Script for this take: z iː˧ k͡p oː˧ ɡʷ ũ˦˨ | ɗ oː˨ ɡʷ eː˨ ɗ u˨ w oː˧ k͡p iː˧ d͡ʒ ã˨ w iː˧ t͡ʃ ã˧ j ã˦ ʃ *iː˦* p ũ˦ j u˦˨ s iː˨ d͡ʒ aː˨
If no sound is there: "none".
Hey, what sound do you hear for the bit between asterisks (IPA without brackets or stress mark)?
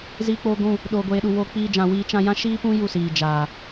iː˦